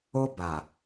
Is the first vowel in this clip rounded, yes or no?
yes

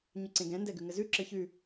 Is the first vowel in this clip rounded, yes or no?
yes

